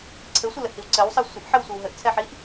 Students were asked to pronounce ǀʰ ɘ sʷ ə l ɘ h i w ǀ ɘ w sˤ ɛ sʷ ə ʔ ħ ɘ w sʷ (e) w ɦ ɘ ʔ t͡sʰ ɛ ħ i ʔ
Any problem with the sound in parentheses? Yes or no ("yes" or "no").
yes